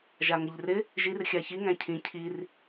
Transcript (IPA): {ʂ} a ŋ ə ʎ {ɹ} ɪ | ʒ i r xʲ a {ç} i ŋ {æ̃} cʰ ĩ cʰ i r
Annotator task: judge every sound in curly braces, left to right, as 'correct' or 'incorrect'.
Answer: incorrect, incorrect, correct, correct

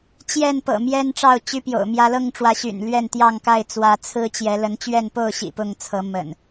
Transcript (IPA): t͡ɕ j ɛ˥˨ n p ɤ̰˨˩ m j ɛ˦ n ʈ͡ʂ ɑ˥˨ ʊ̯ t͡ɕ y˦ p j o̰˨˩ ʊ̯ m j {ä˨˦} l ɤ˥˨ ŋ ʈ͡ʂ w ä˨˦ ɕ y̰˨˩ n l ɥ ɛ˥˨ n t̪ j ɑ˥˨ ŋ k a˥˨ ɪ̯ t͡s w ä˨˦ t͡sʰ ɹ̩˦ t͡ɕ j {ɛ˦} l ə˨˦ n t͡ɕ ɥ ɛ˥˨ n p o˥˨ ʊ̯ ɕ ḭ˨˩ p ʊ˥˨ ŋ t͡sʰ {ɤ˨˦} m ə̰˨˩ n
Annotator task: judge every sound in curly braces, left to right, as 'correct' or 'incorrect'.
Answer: incorrect, incorrect, correct

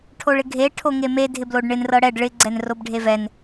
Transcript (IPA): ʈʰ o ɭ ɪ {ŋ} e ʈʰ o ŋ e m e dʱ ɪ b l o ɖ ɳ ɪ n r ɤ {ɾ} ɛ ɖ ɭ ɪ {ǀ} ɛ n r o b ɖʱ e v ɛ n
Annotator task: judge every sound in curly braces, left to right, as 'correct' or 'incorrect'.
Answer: incorrect, incorrect, incorrect

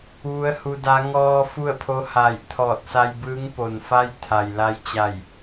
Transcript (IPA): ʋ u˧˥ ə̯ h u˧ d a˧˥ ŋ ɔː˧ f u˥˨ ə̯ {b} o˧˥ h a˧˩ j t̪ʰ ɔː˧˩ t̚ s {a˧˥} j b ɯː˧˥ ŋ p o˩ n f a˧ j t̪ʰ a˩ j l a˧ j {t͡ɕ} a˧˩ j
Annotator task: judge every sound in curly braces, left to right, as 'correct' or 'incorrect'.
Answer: incorrect, incorrect, correct

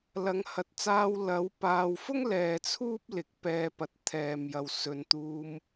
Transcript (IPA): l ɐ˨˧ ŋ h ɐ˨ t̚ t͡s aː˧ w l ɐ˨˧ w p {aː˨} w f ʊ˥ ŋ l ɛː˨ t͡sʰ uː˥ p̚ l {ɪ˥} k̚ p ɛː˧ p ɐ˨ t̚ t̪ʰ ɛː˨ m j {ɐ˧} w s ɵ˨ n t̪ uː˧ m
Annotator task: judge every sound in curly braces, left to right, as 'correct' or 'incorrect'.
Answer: correct, incorrect, incorrect

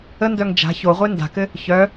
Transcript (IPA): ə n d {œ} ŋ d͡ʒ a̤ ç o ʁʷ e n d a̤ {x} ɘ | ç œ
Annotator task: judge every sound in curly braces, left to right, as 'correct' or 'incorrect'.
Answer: correct, incorrect

